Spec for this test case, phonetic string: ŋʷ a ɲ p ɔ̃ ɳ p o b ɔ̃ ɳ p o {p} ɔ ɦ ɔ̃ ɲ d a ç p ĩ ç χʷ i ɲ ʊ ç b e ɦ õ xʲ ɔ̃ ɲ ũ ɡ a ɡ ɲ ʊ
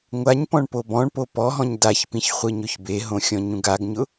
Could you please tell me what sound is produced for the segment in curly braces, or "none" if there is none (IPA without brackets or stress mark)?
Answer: p